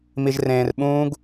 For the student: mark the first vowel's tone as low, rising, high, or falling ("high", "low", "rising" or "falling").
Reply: low